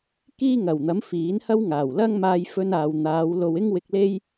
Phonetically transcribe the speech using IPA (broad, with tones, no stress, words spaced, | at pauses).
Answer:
kiː˥ŋɐ˨˩wn̪ɐ˨˥m fiː˨˥nhɐ˥wŋaː˨˩wlɐ˥ŋ maː˧jfɵ˧naː˨wn̪aː˨˧w lo˨wɪ˥ŋ wɪ˧k̚le˥j